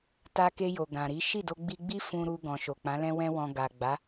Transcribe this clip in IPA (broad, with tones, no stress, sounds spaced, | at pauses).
t a˧ k e˧ j o˨ ɡ ã˨ ɾ i˨˦ ʃ i˦˨ d o˧ ɡ͡b i˧ ɡ͡b i˦ f ũ˧ ɾ u˧ ɡ ɔ̃˨ ʃ o˨ k͡p ã˨˦ l ɛ̃˦ w ɛ̃˧ w ɔ̃˨ ɡ a˨ ɡ͡b a˨˦